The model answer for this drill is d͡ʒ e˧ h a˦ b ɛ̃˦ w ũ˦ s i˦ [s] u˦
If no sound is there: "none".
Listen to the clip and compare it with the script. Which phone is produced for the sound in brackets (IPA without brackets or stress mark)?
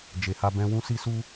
s